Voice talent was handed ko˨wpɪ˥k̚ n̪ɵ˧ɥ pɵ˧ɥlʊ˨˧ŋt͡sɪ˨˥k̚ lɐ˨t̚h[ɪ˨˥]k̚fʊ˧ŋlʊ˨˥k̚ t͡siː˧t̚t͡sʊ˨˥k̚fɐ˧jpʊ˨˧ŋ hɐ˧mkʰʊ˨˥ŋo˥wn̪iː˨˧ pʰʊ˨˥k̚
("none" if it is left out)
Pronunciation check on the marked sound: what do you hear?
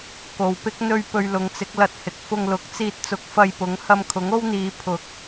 ɪ˨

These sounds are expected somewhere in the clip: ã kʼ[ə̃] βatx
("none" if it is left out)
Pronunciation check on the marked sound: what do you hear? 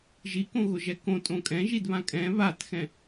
ɛ̃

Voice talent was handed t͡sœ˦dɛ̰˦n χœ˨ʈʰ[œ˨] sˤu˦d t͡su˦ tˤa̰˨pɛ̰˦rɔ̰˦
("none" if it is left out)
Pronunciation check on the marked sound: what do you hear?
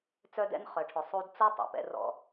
ɵ˨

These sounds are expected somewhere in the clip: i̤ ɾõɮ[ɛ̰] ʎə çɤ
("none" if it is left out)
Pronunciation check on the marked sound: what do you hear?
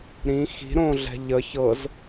ɛ̤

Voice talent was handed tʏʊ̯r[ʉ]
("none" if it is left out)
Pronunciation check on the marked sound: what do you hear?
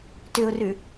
ʉ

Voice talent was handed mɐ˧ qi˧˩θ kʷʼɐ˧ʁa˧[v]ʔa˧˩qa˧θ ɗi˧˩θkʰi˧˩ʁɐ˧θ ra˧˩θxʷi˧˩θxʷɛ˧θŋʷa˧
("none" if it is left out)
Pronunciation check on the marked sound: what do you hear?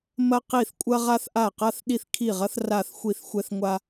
θ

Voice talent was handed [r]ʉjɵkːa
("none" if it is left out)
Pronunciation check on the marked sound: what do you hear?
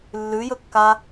lː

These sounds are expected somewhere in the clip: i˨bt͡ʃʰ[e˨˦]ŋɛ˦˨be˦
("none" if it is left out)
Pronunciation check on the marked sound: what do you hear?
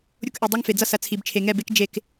e˨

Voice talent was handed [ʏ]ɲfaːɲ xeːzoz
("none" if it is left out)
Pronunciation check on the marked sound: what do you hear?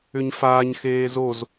ʏ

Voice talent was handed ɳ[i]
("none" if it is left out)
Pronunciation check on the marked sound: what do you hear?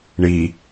i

